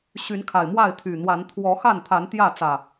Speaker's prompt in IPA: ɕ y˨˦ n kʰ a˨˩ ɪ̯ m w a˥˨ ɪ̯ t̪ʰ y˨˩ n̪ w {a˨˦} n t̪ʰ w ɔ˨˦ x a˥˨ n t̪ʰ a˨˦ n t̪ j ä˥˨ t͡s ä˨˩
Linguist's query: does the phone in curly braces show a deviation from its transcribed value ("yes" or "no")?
no